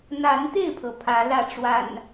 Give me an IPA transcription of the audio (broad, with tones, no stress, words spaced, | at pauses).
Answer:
n̪a˨˦nt̪e˥˨ɪ̯pʰɤ˩ pʰä˨˦lä˥˨ʈ͡ʂwa̰˨˩n